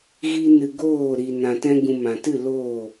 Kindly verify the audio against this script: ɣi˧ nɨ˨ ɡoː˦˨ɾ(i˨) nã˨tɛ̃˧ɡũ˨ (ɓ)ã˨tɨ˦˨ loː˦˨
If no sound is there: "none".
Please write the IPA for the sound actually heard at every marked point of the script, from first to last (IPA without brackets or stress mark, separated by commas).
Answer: i˨, m